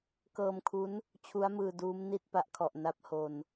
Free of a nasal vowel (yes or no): yes